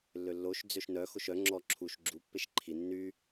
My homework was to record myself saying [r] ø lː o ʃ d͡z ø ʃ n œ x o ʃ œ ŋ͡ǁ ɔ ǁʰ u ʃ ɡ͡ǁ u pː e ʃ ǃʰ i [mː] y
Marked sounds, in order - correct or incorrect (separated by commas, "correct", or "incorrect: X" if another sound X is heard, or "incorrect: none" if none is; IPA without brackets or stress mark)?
incorrect: lː, incorrect: nː